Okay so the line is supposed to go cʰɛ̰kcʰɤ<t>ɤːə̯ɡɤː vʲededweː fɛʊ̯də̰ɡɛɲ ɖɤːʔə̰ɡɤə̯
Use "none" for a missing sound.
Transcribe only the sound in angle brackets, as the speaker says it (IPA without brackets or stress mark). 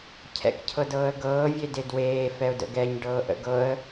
d